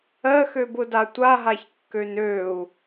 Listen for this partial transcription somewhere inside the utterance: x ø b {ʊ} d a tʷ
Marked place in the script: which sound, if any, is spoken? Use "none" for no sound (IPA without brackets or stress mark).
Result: ʊ